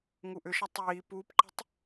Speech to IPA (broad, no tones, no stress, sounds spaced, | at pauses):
ŋ u ʔ ʏ ʃ ɐ tˤ iː p uː p ǃ ə̤ tˤ